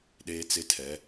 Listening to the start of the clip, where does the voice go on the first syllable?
high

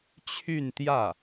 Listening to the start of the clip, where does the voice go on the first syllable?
falling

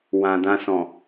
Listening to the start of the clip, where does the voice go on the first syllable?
low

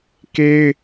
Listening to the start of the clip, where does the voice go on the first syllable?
high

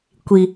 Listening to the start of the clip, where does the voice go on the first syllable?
low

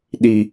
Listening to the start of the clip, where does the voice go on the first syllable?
low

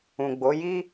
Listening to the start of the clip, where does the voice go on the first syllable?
low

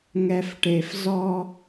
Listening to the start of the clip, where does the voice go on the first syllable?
low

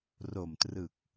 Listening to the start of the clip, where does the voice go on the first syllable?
low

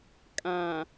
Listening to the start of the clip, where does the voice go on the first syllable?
low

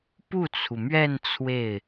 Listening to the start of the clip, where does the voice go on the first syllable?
falling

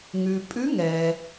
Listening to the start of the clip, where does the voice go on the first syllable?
low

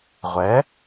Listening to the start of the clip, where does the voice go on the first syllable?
rising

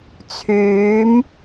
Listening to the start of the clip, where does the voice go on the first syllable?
rising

